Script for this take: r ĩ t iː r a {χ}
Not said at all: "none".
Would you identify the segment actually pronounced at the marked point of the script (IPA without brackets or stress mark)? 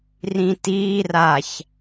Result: ç